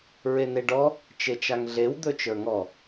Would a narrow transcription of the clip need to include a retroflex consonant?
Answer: yes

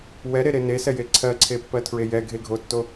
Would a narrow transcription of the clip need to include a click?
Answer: yes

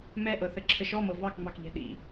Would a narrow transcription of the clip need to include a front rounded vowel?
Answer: no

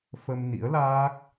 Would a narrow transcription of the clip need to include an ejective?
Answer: no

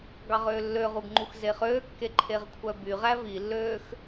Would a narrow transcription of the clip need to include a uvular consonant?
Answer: yes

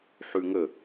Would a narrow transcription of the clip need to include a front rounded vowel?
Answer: no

